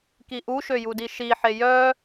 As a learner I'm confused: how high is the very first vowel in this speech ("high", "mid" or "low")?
high